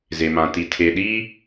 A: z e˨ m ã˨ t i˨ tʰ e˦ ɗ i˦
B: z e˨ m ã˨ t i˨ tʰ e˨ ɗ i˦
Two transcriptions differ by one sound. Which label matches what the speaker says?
B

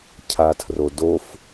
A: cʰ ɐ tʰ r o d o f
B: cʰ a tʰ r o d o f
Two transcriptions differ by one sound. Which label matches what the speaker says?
B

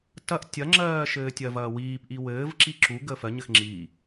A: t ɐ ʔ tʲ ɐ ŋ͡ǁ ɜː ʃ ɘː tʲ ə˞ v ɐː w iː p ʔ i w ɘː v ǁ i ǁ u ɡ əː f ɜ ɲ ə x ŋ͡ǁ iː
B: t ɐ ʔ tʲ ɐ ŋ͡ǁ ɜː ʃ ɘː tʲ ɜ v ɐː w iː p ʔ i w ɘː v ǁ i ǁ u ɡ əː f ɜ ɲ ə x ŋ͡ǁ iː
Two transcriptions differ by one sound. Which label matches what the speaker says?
B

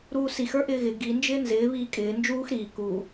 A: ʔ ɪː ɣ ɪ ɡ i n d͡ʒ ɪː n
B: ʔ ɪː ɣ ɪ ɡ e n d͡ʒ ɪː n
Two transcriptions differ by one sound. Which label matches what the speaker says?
A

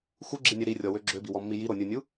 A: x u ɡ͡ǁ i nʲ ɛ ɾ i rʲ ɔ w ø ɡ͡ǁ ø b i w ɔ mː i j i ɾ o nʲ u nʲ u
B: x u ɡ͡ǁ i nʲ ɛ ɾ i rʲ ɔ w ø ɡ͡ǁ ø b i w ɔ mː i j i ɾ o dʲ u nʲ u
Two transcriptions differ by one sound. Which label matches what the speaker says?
A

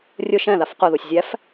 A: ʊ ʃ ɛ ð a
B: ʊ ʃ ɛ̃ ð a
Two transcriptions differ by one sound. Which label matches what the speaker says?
B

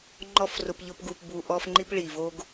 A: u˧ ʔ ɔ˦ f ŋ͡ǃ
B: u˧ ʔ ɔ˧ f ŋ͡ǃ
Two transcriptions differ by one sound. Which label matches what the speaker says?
A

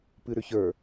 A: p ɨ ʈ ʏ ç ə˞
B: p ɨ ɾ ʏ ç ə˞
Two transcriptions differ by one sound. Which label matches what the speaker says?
B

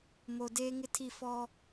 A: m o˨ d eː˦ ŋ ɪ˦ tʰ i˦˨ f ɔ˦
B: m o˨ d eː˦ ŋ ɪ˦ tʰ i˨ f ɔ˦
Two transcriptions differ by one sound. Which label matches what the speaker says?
A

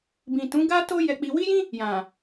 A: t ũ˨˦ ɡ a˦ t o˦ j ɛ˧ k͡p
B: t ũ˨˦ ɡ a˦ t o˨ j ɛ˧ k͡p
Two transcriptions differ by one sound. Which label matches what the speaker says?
A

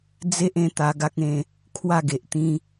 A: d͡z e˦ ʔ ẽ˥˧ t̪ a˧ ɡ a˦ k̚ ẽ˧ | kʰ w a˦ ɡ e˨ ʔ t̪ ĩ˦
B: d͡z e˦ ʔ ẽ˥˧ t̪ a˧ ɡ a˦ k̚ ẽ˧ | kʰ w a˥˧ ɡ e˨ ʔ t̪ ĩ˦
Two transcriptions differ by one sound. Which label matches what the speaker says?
B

